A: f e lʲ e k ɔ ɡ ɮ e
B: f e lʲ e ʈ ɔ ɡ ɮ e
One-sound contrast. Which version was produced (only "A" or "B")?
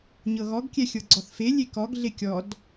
A